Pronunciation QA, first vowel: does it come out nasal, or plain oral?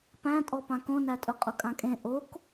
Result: nasal